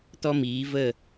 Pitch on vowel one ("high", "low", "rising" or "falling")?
high